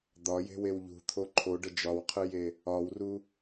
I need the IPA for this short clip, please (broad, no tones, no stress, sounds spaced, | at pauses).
d̪ ɒ j e̤ w e w ʎ ṳ t̪ʰ o ǃʰ o ɖ ə d͡ʒ ɒ w qʰ ɨ j e | ɒ w r u